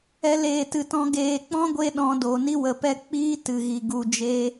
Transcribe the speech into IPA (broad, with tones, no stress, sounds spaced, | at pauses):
ɛ˦ l eː˦˨ t ɨ˧ t ɔ̃˦ ɡ eː˧ k͡p ɔ̃˦ ɡʷ e˧ ɗ ɔ̃˧ d o˨ n i˦ w ə˨ p ɛ˦˨ k͡p iː˦ t ɨ˨ ɣ i˨ ɡ u˨ d͡ʒ e˦